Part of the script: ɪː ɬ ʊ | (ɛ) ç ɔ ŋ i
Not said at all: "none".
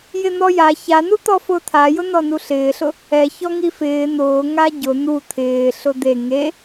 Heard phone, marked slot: ɛ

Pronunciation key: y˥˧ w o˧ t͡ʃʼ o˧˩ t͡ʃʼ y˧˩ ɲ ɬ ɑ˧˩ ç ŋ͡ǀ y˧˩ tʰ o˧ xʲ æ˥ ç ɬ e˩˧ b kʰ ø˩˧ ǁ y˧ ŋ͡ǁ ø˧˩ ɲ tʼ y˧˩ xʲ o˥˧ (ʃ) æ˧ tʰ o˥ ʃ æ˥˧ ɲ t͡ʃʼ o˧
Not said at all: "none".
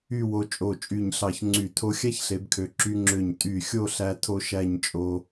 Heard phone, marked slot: ɬ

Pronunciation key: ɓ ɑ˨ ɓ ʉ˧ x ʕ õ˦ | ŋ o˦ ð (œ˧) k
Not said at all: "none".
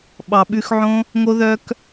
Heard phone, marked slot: œ˦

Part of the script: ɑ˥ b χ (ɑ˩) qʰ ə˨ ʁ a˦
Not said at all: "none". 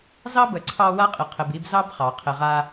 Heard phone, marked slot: ɑ˩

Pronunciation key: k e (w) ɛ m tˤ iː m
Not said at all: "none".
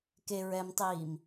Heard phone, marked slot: ɹ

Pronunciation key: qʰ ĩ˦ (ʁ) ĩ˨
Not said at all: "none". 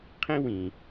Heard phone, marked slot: w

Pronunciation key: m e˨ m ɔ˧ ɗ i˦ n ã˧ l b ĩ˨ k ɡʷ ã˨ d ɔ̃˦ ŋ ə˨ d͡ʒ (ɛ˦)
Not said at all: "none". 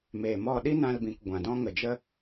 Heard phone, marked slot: ə˦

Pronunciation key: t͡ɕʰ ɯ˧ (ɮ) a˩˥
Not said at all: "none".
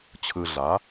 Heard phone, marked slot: ɮ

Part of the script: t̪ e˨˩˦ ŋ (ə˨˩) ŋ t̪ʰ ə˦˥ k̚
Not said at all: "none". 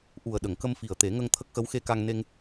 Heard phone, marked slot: ə˧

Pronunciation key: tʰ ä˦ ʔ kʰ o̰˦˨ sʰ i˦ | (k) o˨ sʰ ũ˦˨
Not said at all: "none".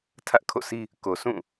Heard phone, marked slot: k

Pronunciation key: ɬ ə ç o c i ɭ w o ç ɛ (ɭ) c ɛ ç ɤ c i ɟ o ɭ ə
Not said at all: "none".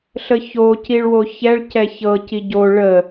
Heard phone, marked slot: ɭ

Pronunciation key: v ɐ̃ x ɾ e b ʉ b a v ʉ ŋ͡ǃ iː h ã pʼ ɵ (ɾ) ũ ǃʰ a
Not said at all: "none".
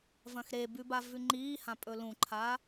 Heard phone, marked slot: l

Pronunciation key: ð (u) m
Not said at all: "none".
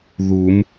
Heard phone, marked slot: u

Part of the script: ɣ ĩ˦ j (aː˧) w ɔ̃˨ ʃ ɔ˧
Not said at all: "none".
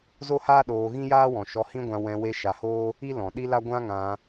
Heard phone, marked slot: aː˦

